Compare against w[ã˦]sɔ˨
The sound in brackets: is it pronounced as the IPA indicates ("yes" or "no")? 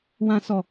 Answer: no